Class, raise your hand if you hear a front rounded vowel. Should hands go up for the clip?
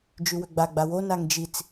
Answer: yes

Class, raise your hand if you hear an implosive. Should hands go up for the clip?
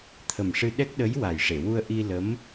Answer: yes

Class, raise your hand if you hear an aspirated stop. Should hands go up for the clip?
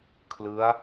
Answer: yes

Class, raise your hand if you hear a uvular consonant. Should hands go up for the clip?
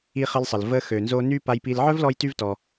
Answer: yes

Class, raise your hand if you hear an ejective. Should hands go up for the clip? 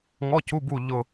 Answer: no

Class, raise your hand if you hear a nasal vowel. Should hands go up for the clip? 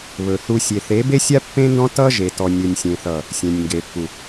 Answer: yes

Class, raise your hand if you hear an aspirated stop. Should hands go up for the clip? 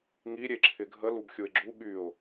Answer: yes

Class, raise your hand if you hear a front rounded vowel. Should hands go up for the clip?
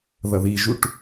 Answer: no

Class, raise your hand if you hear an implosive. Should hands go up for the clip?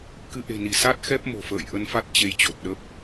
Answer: yes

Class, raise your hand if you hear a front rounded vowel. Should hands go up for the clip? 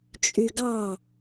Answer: yes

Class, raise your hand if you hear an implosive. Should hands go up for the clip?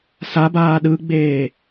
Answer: yes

